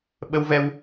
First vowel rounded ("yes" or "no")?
no